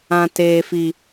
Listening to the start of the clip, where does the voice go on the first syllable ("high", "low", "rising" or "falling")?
high